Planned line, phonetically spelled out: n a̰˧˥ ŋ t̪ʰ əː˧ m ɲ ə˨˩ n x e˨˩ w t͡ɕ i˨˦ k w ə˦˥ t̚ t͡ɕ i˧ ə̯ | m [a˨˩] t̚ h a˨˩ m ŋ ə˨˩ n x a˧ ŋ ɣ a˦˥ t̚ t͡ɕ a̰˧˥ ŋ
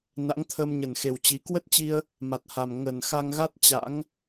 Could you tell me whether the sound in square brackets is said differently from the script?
no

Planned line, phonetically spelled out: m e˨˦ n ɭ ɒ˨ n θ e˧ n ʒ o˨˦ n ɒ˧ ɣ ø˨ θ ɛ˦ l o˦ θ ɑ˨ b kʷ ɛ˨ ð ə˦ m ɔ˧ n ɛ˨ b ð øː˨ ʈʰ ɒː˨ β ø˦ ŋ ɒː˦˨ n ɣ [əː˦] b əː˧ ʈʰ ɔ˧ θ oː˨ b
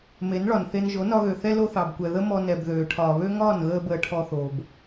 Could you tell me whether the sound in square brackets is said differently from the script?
no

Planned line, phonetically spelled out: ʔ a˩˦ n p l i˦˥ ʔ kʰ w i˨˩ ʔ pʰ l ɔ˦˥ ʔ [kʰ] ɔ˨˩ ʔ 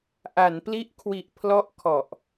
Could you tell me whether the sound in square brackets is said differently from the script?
no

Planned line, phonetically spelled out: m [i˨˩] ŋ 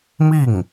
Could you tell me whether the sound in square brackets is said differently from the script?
yes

